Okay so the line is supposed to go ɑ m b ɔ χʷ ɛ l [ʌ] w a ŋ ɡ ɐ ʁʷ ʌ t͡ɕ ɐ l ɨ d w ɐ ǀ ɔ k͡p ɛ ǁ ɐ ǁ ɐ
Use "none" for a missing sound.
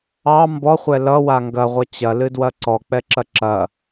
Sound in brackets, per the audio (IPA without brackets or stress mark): ʌ